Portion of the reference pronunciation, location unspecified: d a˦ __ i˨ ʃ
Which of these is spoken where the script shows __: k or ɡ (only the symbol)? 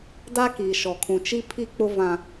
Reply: k